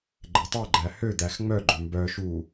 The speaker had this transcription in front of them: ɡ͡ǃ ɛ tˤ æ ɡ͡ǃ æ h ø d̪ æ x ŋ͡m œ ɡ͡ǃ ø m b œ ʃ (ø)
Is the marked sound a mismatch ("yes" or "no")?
yes